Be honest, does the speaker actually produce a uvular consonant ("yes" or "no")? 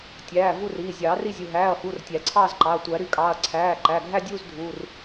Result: no